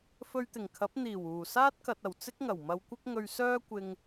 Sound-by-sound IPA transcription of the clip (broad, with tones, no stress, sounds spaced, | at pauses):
f ɵ˧ ɥ t̪ ɪ˨˩ ŋ kʰ ɐ˨˥ p̚ n̪ iː˨˩ w uː˨˩ s aː˥ t̚ k ɐ˨ t̚ ɐ˨˩ w t͡s ɪ˥ k̚ ŋ ɐ˨˩ w m ɐ˧ w kʷ ɪ˥ k̚ ŋ ɵ˧ ɥ s œː˥ kʷ ɪ˧ ŋ